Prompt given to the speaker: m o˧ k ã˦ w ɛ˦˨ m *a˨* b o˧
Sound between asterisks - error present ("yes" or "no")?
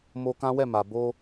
no